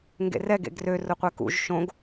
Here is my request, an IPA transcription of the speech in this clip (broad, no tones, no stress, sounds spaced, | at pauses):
ŋ ɡ ḛ r ɛ ɡ ḛ ɡ r ø r ʊ qʷ ɛ k ṵ ʒ ʃ õ ɡ